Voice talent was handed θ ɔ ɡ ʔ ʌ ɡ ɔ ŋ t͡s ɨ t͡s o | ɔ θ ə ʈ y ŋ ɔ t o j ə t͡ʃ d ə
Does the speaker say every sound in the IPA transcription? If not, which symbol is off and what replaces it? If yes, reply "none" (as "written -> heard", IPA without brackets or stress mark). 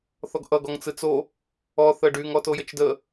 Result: ʈ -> ɖ